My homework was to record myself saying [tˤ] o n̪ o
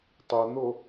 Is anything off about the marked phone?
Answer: no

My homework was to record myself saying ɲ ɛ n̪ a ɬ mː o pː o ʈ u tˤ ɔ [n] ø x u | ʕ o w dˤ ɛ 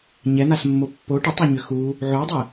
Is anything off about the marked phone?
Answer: yes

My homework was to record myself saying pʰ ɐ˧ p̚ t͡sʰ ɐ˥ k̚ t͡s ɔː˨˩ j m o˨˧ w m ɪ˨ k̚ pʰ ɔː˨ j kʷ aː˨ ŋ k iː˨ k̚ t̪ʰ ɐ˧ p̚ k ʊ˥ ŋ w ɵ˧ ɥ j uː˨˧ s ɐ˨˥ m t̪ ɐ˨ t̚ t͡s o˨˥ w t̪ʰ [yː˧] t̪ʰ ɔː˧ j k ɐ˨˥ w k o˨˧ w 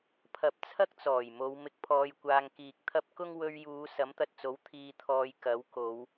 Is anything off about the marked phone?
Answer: yes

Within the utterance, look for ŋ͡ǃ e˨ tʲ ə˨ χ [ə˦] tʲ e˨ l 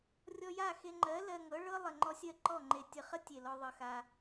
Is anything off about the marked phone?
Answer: no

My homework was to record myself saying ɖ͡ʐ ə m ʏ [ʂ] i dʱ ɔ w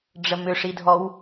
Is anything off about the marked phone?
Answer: no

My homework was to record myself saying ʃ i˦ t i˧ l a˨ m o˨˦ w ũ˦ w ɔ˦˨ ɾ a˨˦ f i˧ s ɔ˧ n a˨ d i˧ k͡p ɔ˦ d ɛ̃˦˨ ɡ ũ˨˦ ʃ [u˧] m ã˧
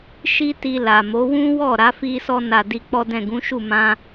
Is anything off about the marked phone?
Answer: yes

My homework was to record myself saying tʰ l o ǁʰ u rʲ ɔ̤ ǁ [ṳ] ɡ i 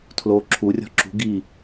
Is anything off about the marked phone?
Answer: no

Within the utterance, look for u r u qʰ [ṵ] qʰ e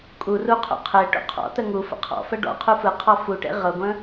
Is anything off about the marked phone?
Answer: no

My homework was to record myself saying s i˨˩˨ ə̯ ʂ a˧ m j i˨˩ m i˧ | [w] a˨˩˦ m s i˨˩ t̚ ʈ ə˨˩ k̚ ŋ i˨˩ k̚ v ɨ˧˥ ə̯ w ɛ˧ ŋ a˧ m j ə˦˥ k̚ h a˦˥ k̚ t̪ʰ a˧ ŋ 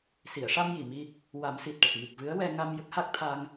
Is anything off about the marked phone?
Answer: no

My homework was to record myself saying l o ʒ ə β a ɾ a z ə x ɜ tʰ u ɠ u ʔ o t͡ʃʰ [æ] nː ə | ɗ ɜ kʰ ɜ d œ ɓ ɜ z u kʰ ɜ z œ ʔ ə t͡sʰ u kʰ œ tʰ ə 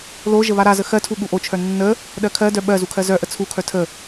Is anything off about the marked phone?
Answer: yes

